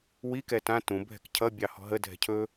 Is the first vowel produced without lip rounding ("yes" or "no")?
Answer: yes